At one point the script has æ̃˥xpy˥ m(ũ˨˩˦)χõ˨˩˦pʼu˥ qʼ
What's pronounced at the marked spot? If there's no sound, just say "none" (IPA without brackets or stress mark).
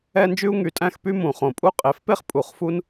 ũ˨˩˦